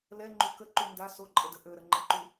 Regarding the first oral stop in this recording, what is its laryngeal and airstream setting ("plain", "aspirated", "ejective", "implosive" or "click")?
click